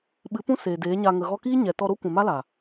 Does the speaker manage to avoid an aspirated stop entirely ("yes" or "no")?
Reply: yes